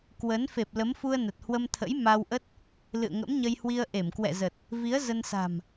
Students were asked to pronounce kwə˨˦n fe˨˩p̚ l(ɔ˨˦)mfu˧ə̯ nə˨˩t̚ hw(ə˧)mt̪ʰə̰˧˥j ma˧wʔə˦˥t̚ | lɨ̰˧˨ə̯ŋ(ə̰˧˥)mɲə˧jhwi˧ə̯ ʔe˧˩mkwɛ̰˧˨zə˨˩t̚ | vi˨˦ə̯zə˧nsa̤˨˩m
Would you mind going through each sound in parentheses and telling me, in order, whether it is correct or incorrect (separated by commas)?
incorrect, correct, correct